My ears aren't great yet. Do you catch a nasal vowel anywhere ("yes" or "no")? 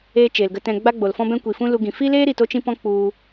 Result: yes